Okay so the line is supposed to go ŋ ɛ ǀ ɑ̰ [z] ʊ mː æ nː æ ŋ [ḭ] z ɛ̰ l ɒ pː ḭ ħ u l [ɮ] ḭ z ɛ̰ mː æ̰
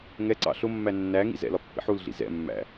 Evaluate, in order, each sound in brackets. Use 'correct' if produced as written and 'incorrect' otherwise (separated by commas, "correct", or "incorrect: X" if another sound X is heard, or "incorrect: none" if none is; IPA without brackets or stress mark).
incorrect: ɬ, correct, correct